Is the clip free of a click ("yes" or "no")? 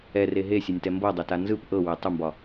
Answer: yes